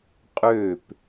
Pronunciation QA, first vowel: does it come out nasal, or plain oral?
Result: oral